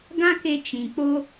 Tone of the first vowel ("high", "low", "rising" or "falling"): high